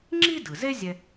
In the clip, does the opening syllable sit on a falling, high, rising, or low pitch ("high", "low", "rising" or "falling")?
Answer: high